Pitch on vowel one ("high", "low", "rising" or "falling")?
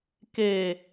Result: low